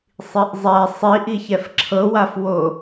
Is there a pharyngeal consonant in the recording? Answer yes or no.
no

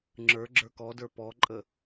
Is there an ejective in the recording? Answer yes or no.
yes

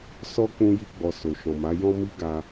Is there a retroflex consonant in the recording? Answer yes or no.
no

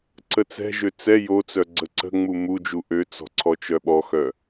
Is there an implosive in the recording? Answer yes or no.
yes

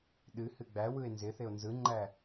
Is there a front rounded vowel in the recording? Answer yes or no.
no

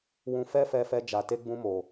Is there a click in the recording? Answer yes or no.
no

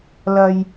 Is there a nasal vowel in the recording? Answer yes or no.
no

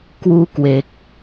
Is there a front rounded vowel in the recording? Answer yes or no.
no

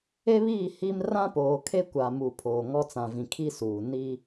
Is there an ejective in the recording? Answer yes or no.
no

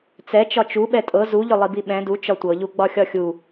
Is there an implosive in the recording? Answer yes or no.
yes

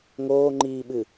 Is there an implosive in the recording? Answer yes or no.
yes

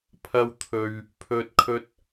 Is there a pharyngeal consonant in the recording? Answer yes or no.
no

